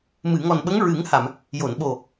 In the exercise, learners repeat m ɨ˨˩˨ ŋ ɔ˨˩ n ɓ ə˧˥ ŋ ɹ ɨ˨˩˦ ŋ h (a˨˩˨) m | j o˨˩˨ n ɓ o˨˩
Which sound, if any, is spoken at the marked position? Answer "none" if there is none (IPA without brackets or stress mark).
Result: a˨˩˨